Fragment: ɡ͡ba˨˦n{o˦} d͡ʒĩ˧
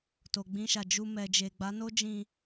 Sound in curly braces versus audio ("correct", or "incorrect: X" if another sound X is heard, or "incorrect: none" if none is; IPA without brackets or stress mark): correct